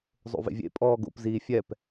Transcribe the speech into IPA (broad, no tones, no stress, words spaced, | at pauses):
zˤo̰vḛvʲḛ pʼɔːɡo̰p ziːfʲɛp